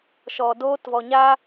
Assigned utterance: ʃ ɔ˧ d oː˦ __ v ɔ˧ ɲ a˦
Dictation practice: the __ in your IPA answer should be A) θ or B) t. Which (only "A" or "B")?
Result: B